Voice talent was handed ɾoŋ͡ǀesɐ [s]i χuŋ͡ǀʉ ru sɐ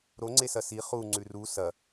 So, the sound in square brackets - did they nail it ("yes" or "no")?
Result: yes